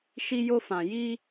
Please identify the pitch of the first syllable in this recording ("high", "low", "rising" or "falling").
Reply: high